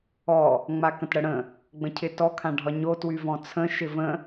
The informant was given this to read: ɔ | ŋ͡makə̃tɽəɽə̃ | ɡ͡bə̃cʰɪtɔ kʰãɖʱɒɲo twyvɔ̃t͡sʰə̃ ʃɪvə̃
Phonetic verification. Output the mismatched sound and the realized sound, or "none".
none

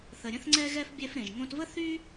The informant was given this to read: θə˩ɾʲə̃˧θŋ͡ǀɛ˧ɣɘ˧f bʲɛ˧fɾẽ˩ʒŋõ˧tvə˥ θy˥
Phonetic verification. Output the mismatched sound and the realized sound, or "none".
ɘ˧ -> ɛ˧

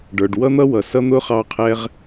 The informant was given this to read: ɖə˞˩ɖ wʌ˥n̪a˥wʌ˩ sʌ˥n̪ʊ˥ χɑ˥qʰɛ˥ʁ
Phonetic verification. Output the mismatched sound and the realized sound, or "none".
a˥ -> ʌ˥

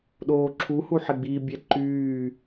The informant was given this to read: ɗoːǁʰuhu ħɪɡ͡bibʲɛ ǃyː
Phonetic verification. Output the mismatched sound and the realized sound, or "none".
none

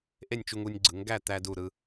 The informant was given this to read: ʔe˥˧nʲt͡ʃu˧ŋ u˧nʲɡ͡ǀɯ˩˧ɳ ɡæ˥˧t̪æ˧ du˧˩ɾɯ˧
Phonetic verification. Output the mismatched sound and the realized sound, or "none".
ɳ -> ŋ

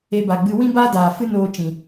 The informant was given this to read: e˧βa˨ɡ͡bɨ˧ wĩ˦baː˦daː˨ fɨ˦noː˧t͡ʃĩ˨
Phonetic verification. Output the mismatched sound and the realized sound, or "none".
β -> b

